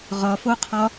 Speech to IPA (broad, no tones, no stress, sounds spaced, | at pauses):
ʁ ɒ f o qʰ ɒ